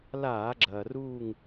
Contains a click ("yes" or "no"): yes